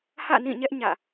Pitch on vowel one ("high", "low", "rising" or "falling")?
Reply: falling